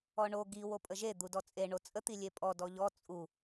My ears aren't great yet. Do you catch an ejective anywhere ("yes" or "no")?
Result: yes